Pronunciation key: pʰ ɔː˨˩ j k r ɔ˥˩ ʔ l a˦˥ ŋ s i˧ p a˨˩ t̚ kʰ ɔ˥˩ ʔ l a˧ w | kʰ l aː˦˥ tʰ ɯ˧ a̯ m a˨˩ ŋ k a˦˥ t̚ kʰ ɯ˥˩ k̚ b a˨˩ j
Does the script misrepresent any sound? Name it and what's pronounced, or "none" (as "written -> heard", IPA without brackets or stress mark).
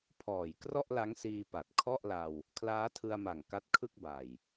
i˧ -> iː˧